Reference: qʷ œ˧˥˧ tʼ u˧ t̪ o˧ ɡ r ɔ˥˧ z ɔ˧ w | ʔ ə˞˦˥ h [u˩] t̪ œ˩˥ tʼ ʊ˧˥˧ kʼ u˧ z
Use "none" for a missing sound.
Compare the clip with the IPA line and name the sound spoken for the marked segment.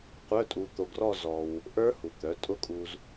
u˩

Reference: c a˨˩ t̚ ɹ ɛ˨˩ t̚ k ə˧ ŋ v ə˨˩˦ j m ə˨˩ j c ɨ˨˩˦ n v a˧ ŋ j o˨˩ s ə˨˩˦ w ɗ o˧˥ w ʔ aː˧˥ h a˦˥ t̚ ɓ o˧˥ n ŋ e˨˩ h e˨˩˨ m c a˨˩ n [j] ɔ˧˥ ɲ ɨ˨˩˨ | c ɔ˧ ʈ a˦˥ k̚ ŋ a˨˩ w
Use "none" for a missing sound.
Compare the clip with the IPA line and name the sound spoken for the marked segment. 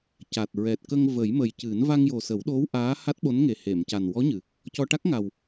w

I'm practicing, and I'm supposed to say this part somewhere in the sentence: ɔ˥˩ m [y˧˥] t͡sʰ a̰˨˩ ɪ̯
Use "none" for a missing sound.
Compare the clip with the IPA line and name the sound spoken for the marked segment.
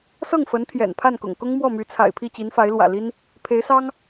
y˧˥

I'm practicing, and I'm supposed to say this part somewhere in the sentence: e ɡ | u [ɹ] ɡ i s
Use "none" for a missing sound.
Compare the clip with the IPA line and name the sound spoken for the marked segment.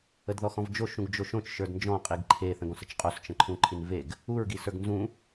ɹ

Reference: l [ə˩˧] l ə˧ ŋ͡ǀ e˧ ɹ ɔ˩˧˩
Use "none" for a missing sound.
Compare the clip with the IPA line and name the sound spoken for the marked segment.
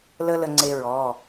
ə˥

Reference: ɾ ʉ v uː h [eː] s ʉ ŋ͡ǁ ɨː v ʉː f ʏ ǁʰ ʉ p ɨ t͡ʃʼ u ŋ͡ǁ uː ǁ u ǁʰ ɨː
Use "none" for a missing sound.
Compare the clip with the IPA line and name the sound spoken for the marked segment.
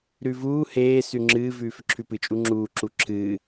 eː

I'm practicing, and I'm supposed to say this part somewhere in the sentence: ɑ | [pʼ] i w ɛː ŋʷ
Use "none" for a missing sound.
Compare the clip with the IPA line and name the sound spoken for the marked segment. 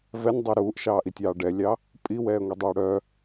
pʼ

